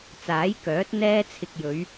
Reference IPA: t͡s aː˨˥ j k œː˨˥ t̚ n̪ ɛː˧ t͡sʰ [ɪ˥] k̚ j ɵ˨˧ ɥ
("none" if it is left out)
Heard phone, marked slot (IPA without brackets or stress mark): ɪ˨